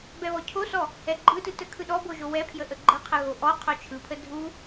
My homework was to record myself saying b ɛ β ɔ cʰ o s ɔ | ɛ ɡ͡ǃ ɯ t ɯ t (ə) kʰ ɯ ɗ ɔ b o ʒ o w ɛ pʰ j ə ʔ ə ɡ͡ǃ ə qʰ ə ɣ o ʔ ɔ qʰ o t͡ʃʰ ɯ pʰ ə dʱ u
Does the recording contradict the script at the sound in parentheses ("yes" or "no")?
no